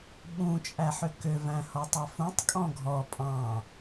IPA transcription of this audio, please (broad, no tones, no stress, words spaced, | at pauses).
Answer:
ɓũ t͡ʃʼæħʏkʏ væ̃hɔtˤɑfũtˤ kʼɔ̃ɡʱɔ pʼɑ̃